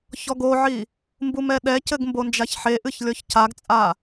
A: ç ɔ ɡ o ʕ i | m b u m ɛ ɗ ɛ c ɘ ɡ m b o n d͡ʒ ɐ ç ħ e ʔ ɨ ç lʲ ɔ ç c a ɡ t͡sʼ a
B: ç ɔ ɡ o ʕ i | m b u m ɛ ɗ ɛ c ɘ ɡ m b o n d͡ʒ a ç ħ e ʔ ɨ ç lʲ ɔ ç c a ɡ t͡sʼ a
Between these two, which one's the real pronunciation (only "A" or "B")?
B